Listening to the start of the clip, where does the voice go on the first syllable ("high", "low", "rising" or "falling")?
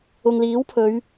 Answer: low